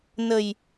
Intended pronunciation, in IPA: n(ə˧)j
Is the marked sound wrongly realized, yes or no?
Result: yes